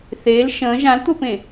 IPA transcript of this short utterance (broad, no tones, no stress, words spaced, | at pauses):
θeːl ʃə̃ː ʒãlt̪opẽ